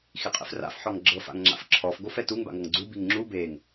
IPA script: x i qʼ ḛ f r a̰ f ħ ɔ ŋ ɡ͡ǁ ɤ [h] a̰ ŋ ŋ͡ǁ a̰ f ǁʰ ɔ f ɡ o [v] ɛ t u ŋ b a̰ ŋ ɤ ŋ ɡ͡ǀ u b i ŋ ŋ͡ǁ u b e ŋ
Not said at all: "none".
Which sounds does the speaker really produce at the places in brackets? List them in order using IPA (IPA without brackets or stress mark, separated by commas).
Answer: f, f